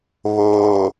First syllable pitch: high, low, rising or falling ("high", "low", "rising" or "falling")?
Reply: low